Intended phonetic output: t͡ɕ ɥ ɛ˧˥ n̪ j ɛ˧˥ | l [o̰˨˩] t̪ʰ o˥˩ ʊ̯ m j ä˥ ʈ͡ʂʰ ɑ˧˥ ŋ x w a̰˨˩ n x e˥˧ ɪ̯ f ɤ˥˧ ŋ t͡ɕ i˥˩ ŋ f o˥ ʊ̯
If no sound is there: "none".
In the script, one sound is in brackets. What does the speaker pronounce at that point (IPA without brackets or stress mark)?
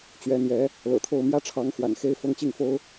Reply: ɤ̰˨˩